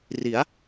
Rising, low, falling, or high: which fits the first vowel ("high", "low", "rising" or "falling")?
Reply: rising